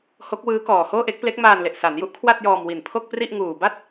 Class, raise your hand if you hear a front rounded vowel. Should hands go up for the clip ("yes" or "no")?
no